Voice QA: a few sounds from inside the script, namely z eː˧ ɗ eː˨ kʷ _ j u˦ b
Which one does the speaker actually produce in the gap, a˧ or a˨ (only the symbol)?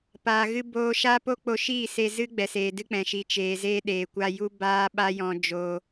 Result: a˧